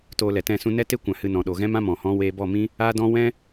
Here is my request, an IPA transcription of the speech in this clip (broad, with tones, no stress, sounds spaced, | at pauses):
t oː˧ l ɛ˨ t ɛ̃˦˨ s ũ˦ n ɛ˦ t e˦ kʷ ã˨ h ɨ˧ n ɔ̃˨ ɗ o˨ ɣ ɛ̃˦ m ã˦ m ɔ̃˨ h ɔ̃˦ w eː˧ b ɔ˦˨ m ĩ˦ | aː˦ d ɔ̃˦ w ɛ̃˦